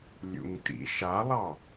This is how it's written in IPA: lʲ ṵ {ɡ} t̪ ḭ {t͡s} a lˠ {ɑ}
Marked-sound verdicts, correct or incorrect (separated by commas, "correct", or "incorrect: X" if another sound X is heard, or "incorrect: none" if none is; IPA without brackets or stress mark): incorrect: ŋ, incorrect: ʃ, correct